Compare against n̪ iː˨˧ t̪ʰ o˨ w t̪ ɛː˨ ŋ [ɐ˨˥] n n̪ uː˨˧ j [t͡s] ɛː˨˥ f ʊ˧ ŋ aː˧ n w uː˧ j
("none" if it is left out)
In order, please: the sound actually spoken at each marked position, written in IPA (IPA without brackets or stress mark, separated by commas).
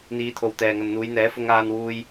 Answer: ɐ˨, n̪